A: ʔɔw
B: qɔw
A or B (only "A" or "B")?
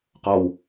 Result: B